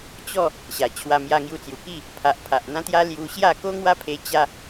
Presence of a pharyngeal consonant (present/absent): absent